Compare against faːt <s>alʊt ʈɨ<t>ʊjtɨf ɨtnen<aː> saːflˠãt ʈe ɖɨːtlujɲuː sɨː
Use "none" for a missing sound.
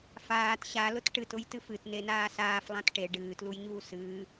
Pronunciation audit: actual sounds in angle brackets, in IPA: ɕ, t, aː

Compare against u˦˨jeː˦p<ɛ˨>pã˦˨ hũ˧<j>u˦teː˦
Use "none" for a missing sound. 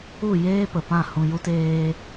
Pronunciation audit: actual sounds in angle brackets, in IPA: ə˨, j

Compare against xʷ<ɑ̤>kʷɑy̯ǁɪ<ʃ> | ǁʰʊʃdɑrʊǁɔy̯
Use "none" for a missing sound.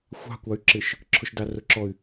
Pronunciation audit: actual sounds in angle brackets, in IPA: ɑ̤, ʃ

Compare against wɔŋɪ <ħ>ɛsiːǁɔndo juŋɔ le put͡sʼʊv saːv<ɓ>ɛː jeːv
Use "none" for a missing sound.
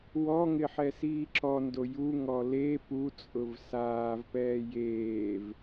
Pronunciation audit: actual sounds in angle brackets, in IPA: ħ, p

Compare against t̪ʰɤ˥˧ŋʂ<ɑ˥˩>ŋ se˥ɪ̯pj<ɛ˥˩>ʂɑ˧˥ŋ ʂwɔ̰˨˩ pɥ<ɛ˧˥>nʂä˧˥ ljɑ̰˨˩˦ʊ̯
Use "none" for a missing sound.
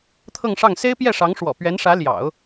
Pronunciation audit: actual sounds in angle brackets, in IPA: ɑ˥˩, ɛ˥˩, ɛ˧˥

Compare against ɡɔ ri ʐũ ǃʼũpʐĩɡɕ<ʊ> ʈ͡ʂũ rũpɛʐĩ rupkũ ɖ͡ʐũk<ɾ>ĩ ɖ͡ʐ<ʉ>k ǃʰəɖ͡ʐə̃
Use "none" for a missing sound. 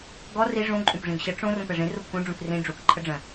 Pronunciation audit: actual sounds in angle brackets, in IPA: ə, r, u

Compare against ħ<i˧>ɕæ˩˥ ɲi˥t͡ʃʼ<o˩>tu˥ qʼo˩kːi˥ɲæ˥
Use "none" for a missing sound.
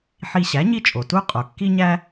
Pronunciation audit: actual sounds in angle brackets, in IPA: i˧, o˩

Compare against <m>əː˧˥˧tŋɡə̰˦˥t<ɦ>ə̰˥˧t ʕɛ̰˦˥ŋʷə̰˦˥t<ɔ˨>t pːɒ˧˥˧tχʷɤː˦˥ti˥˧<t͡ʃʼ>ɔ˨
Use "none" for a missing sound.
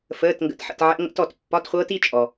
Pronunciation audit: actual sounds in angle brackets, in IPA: f, ħ, ɔ˨, t͡ʃʼ

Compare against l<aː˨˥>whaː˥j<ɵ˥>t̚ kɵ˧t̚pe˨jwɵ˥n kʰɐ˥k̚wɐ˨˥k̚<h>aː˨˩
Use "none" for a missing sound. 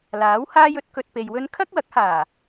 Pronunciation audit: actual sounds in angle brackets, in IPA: aː˨˥, ɵ˨˥, h

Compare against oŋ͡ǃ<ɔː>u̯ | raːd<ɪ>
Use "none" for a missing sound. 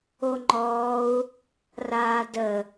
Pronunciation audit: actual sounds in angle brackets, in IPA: ɔː, ə

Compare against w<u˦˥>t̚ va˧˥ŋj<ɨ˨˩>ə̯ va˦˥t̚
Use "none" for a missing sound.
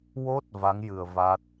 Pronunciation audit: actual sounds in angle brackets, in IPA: o˦˥, ɨ˨˩

